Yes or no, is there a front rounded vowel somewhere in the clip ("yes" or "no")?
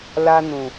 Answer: no